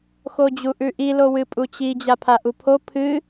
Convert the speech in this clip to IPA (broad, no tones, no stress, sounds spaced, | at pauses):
x o d͡ʑ u ʔ ʉ ʔ i l o w ɨ pʼ u t͡ɕ i d͡ʑ a pʰ a ʔ u pʰ o pʰ ɨ